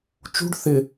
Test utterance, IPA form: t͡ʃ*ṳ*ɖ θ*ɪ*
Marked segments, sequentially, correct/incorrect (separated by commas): correct, correct